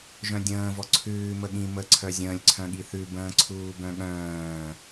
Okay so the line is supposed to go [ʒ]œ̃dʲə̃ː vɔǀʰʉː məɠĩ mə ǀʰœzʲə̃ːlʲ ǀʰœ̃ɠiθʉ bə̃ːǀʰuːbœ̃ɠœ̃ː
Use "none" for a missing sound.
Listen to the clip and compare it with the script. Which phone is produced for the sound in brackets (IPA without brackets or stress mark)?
ʒ